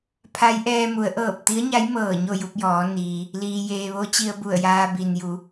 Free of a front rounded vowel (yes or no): yes